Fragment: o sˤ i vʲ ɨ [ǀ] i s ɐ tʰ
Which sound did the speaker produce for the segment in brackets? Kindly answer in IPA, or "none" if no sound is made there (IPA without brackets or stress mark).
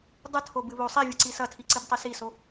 ǀ